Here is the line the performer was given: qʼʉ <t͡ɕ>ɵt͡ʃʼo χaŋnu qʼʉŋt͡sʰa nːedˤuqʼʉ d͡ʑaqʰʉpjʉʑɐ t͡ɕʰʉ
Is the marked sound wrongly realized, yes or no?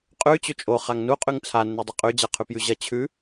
no